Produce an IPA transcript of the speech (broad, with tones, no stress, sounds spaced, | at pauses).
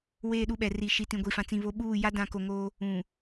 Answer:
w eː˦˨ ɗ u˦ ɓ ɛ˨ r i˨ ʃ i˨ t ĩ˨ ɡʷ i˨ f ã˨ t͡s ĩ˨ β o˦ ɓ uː˦˨ j a˦ d ã˨ k o˨ ŋ oː˦ | ũ˨